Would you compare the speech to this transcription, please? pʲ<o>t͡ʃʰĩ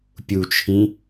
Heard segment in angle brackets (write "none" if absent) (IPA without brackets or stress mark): u